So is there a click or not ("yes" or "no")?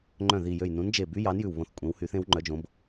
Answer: yes